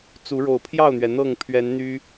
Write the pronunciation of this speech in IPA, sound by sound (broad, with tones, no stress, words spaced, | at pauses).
t͡su˨˦ ɻo˨˩ʊ̯pʰjɑ˥˨ʊ̯n̪ɥɛ˩ n̪ɤ˥˨ŋpʰɥɛ˨˦nn̪y˦